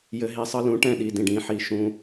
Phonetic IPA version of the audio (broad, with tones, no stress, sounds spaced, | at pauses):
j ɘ˨ ɦ i˨ sˤ ɤ˧ l ũ˨˦ ʈ ɛ̃˦˨ ɗ i˨ d ĩ˨ ɖ ĩ˨˦ ħ i˨ ʃ ũ˧